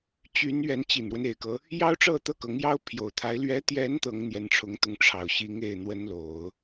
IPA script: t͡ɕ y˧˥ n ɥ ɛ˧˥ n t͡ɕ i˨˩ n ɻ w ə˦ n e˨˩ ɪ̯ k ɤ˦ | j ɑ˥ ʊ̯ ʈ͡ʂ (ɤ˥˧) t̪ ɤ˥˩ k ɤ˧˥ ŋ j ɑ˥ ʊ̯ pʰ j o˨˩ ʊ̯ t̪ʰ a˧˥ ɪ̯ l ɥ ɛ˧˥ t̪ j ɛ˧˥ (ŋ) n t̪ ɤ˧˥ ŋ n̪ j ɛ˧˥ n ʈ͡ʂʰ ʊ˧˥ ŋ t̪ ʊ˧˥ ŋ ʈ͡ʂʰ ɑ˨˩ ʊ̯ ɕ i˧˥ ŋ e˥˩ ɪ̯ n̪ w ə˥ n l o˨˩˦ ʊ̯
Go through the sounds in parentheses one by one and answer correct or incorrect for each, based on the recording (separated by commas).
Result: correct, incorrect